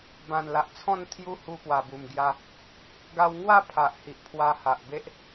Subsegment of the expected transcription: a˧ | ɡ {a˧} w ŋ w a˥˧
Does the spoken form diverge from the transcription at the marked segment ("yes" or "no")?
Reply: no